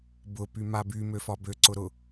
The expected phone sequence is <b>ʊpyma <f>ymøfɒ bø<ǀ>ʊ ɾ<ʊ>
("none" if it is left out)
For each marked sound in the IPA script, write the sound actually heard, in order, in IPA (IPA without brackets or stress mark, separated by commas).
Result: b, b, ǀ, ʊ